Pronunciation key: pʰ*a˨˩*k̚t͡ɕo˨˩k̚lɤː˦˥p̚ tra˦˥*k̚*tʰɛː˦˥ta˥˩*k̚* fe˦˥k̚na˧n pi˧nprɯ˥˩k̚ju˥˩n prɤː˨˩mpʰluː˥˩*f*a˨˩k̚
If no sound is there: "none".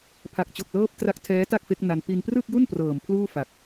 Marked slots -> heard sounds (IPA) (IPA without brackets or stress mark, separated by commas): a˨˩, k̚, k̚, f